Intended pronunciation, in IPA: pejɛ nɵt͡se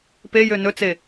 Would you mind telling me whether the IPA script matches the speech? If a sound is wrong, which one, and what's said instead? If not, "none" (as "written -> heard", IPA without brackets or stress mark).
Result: ɛ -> ø